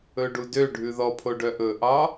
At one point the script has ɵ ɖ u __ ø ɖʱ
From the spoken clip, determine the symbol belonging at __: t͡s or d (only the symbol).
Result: d